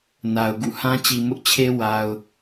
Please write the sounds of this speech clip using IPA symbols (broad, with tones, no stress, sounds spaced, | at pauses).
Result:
n a˨ ʊ̯ ɡ ṵ˦˨ h ã˦ t͡ɕ i˨ m ʊ˦ ʔ t͡ɕʰ e˦ w a˨ ʊ̯